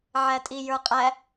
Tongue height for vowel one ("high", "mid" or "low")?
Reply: low